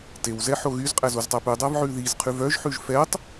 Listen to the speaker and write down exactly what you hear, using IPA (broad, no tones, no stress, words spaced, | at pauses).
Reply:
tew zɛħoɣyzqʼæz oztˤæpʉdˤæv ʕʉðizqʰʉv œʒħʉʒ fɛtˤ